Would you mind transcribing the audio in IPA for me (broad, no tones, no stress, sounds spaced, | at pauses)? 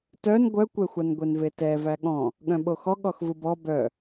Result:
t œ n ɡʷ œ kʷ ɛ xʷ a n ɡʷ e n v e t ɛ v æ ɠ ɔ̃ | ɠ œ̃ ɓ o x ɔ ɠ ɔ x v ɯ b ɔ b œ